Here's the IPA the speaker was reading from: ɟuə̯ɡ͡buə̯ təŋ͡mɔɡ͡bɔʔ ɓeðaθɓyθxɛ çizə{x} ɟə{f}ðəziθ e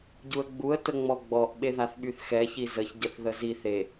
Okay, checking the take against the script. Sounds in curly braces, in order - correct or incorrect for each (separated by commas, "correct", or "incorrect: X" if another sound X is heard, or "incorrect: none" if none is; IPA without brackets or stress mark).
incorrect: ç, incorrect: θ